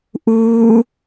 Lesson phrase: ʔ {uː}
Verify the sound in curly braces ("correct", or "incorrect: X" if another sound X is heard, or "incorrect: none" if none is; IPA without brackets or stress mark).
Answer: correct